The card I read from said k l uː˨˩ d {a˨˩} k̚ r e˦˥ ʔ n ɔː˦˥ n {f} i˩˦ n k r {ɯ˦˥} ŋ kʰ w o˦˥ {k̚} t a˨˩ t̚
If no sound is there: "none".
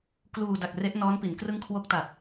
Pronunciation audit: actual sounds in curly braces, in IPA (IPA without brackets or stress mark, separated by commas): a˨˩, p, ɯ˦˥, k̚